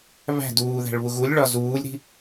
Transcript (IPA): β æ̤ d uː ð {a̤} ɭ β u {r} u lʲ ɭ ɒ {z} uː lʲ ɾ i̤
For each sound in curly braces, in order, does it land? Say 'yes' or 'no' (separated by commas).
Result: no, no, yes